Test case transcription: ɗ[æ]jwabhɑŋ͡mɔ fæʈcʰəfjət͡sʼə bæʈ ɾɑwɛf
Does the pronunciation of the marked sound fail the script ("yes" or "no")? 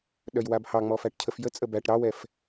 yes